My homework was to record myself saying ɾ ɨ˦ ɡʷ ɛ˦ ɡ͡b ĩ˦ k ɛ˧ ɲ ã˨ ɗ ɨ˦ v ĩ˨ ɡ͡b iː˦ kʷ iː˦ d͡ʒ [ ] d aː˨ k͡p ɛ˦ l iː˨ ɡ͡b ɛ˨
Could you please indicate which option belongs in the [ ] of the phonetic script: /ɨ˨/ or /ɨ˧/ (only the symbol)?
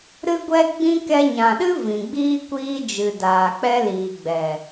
ɨ˨